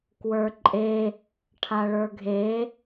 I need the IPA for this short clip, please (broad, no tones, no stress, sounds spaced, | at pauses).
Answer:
k w ə˞ ǃʼ e | ʈʰ a ɭ ə˞ ɡʱ e